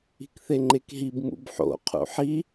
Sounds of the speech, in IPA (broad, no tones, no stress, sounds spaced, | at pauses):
i̤ k θ e ŋ͡ǃ e k ɦ i b m ṵ b ħ o̰ qʰ ṵ ħ i